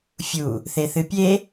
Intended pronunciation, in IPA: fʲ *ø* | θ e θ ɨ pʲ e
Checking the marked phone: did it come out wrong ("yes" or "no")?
yes